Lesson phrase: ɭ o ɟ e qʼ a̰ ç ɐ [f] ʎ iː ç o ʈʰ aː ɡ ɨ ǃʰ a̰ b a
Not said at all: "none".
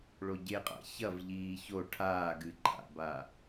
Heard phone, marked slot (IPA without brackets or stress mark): v